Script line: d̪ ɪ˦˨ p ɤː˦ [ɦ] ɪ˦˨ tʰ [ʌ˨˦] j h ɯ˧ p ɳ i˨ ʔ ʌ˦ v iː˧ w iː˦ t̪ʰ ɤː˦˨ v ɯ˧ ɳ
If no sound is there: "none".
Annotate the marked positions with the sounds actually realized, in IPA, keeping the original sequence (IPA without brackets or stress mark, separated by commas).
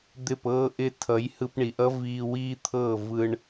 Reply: ʔ, ʌ˨˦